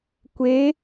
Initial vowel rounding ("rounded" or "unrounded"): unrounded